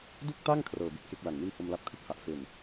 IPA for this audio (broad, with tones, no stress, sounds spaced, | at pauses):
d u˥˩ k̚ t a˥˩ ŋ kʰ r ɤː˨˩ b i˥˩ t̚ k e˦˥ k̚ l a˨˩ ŋ n i˥˩ n h o˧ m l a˦˥ p̚ kʰ ɯ˥˩ k̚ h a˨˩ ʔ f e˨˩ n